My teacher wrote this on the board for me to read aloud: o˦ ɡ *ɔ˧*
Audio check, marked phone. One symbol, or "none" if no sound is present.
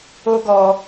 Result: ɔ˧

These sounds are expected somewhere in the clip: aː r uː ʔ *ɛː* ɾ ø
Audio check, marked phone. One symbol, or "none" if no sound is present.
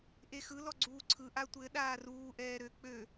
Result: ɛː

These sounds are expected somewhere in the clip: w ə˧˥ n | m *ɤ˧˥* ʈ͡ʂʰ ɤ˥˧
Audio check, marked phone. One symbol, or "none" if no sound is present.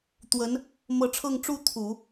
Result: ɤ˧˥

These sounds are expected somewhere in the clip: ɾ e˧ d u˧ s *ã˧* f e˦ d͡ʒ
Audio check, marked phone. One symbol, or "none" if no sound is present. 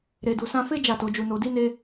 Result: ã˧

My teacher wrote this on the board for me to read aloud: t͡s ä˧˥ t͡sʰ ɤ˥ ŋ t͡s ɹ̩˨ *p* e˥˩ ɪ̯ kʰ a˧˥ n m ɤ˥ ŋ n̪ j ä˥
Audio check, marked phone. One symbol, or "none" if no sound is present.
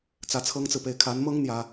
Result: p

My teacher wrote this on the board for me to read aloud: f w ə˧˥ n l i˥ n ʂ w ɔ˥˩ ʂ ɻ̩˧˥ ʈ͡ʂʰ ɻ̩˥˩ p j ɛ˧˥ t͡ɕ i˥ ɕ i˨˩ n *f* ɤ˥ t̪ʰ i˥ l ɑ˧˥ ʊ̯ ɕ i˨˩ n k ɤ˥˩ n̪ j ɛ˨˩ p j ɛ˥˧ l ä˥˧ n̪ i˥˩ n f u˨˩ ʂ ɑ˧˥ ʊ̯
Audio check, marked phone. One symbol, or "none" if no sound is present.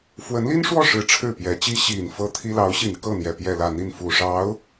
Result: f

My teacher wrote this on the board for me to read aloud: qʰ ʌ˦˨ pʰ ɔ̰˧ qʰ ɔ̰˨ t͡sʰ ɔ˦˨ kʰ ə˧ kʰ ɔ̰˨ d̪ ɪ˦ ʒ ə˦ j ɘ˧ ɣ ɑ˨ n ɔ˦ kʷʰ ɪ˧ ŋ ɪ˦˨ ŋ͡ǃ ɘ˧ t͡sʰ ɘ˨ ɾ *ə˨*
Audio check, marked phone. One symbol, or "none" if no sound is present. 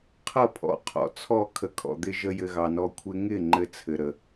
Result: ə˨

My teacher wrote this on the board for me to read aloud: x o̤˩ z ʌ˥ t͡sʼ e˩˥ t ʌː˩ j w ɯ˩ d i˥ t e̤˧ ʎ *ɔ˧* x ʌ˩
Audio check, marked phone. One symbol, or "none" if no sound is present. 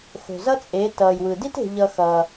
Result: ʌ˧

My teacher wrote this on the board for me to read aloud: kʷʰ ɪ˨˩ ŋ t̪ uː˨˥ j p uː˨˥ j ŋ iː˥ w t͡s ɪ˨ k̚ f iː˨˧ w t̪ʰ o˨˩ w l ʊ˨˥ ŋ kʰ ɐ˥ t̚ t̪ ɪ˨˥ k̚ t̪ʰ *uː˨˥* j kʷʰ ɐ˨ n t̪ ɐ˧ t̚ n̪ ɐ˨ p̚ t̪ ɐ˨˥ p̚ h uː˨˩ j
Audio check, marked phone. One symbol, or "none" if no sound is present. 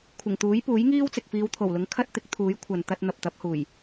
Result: uː˨˥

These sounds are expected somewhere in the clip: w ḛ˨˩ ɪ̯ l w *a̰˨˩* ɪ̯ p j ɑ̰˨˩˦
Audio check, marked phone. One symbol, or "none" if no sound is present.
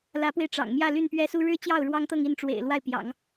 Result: a˥˩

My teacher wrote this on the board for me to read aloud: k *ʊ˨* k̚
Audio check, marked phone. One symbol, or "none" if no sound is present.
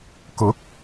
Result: ʊ˨˥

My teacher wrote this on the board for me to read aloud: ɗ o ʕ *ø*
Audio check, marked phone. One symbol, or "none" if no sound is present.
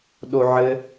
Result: ɘ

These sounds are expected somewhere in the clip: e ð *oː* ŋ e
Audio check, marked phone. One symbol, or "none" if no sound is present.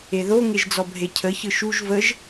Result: o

